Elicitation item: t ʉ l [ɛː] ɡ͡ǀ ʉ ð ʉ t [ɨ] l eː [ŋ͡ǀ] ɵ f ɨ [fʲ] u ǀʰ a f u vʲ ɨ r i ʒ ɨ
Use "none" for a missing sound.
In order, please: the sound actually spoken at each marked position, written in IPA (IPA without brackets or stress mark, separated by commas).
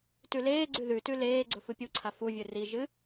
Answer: eː, ʉ, ɡ͡ǀ, pʲ